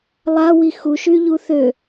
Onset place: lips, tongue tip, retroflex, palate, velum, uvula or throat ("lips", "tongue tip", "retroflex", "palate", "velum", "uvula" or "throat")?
tongue tip